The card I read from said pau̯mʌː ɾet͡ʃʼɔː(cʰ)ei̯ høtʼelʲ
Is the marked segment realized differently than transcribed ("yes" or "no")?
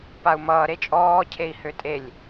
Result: no